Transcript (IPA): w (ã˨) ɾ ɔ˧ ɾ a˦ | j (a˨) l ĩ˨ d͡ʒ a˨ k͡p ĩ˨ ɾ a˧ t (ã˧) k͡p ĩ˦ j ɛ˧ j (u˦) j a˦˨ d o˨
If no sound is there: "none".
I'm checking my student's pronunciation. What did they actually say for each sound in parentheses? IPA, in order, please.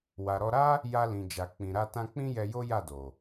a˨, a˧, ã˧, o˦

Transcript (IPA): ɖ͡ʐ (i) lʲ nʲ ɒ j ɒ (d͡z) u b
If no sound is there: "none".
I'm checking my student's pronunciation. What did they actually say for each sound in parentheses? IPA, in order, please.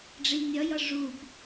i, ʐ

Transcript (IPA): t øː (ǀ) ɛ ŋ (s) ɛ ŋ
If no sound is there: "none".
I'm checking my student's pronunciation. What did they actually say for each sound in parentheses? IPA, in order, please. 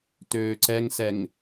ǀ, s

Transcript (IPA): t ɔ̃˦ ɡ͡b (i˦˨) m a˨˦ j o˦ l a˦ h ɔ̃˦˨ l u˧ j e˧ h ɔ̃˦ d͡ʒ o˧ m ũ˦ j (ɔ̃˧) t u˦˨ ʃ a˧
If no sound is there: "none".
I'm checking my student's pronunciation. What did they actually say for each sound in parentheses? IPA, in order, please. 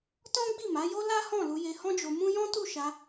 i˦˨, ɔ̃˦

